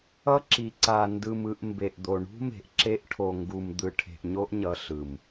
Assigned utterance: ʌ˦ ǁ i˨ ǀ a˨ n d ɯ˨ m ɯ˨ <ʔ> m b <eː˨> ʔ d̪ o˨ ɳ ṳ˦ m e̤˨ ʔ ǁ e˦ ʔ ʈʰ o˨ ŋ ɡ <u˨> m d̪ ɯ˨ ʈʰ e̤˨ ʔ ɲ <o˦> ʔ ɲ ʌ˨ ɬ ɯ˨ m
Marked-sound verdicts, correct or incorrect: correct, incorrect, correct, correct

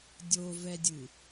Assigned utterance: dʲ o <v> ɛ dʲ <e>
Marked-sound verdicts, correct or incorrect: correct, incorrect

